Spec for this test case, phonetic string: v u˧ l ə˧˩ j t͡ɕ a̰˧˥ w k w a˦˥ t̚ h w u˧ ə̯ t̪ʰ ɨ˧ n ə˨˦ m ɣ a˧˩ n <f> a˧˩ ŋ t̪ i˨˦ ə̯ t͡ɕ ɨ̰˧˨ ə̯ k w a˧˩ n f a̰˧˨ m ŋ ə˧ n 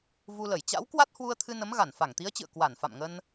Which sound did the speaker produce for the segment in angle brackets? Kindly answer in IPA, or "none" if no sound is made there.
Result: f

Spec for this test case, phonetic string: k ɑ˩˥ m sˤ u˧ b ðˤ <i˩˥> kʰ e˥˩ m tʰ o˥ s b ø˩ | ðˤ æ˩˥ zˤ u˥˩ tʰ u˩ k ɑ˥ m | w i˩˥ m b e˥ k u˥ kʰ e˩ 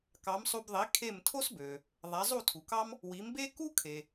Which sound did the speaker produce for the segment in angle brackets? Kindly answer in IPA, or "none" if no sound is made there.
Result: i˩˥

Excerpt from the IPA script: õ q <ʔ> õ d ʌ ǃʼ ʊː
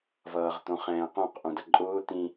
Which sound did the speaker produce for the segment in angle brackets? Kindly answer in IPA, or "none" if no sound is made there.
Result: ʔ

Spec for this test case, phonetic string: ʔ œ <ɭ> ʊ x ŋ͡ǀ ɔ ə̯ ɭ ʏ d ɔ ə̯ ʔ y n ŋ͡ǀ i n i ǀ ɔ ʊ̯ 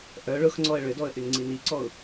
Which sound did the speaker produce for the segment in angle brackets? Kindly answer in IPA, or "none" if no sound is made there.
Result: ɭ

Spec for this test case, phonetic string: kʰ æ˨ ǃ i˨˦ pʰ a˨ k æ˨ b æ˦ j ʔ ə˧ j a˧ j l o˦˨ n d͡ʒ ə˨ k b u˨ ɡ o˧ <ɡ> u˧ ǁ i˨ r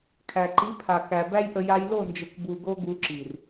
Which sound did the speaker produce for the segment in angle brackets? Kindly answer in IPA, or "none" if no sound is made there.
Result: ɡ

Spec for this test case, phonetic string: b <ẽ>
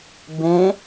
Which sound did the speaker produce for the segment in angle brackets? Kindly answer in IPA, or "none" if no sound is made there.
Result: ẽ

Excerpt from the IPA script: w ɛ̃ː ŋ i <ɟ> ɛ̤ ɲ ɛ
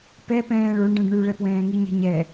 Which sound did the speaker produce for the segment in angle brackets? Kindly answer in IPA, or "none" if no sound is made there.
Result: ɲ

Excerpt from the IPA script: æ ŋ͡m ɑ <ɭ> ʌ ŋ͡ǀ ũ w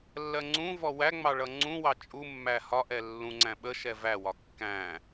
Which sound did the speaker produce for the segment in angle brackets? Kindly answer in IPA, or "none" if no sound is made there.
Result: ɭ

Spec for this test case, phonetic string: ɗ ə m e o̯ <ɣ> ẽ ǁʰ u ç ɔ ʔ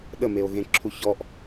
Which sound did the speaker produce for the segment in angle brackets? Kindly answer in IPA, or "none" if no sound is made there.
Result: ɣ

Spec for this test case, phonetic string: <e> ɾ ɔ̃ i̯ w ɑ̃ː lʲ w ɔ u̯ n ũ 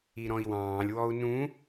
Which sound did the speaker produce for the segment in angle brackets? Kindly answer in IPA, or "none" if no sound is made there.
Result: i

